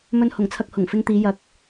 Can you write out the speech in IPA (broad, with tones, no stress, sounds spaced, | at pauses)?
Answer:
m ɵ˧ n h ʊ˨˩ ŋ t͡sʰ ɐ˧ k̚ h ʊ˨˩ ŋ f ɪ˧ ŋ t̪ iː˨˧ j ɐ˨˥ k̚